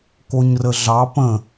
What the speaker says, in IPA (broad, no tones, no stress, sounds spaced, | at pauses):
k o ɲ r ə ɮ ɑ p ə̃